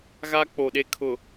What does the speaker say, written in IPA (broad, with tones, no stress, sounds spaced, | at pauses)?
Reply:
ɣ a˦ k͡p o˨ ɗ e˦ kʰ ʊ˨